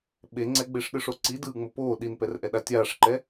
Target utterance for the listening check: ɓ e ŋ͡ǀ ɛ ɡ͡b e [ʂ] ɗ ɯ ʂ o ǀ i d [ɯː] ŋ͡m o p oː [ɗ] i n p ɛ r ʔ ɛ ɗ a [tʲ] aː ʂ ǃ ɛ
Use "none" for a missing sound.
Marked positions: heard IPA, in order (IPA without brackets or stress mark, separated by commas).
ʂ, ɯː, ɗ, tʲ